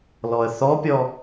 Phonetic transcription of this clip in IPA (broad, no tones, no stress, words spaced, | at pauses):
lɔə̯θɔpʲɔ